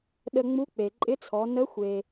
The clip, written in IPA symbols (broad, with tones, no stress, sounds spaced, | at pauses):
ɗ ə˧ ŋ͡m u˧˥ k͡p e˩ ǃʼ ɪ˧˥ t͡sʰ ɔ˩˧ n ə˧˥ xʷ e˩